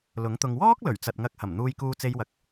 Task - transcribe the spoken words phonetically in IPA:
lʊ˨˥ŋt̪ʊ˧ŋ wɔː˥k̚lɵ˨˩ɥ t͡sɐ˨t̚ŋɐ˨˥k̚hɐ˨˩m n̪uː˧jkuː˧t͡se˧jwɐ˨k̚

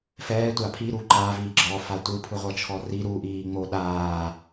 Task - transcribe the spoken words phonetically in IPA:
fɛːtʷa pʰiɾu ǃaviː ɡ͡ǁɔfa tʷɯpʰɯʁʷɤt͡ʃʰɔ ri ɾuʔiːŋ͡mo ɗaː

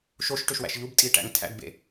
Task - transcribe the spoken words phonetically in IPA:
ʃoʃʈøʃwæ̰ʃ ʎubtʼiʈæ̰ŋ tʰæ̰dbḛ

